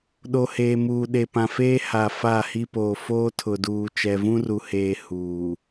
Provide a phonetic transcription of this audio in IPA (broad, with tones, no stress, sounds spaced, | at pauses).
ɗ o˨ h eː˨ m uː˨ ɗ e˨ p ã˨ f eː˦ h a˨ f a˦˨ h i˦ p oː˨ f oː˦ tʰ ʊ˨ d uː˨ t͡ʃ ɛ˨ v ũ˦ r u˨ h eː˨ h uː˨